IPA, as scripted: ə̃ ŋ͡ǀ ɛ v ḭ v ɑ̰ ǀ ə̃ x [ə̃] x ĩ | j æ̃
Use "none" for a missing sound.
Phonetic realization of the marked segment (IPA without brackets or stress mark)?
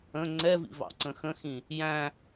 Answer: ə̃